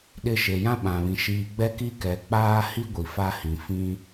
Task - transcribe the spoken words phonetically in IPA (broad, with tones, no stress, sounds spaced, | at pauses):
ɗ ɪ˨ ʃ e˨ j ã˦ ɓ ã˨ β ĩ˨ ʃ iː˨ ɡ͡b ɛ˦ k i˦ k ɛ˨ k͡p aː˦ h i˦ ɡʷ i˨ f a˦ h ĩ˨ f ĩ˦